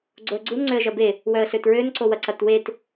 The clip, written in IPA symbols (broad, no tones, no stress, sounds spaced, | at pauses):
ɡ͡ǀ o ə̯ ɡ͡ǀ u n ŋ͡ǀ ø ə̯ ʒ ɐ b e | w œ ə̯ ɬ ø t ɹ ø n ǀ o w ɐ ǀ ɐ t w e t